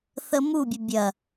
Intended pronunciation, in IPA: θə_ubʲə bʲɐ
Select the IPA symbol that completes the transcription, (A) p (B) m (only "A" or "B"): B